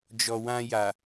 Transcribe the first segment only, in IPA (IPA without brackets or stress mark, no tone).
d͡ʒ